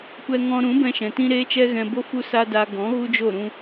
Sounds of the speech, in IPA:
kʷɛ˧ŋɔ̃˧ ɾũ˨˦bɛ̃˧ʃɛ̃˨ tĩ˦ɾeː˦t͡ʃɛ˦ɣɛ̃˧ bo˦ fu˦sa˦da˧ ɡɔ̃˨˦ ɣu˦d͡ʒo˦˨ ɾũ˧

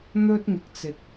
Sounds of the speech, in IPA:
n̪ɵ˥t̚ŋɪ˧k̚t͡sɪ˧k̚

